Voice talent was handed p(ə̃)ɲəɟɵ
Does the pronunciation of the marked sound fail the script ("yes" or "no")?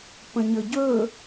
no